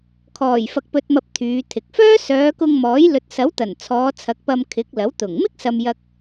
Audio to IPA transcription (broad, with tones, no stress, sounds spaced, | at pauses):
kʰ ɔː˨˩ j f ɐ˨ k̚ p ɵ˨ t̚ m ɐ˨ p̚ t̪ʰ yː˨˧ t̪ʰ ɪ˨ k̚ f œː˥ s œː˨˧ k ʊ˧ ŋ m ɔː˨˥ j l ɵ˨ t̚ s ɐ˨˥ w t̪ ɐ˨˩ n t͡sʰ ɔː˨˧ t͡sʰ ɐ˨˥ k̚ p ɐ˧ m kʰ ɪ˨˥ k̚ l ɐ˨˥ w t̪ ʊ˨˩ ŋ m ɪ˥ k̚ s ɐ˨ m j ɐ˧ k̚